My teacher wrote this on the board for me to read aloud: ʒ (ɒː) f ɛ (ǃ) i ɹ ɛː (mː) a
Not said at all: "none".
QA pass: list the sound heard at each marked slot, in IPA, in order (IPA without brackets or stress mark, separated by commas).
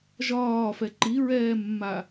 ɒː, ǃ, mː